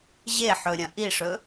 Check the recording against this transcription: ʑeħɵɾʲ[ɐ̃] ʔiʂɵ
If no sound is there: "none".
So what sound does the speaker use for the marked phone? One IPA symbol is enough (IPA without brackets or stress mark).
ɐ̃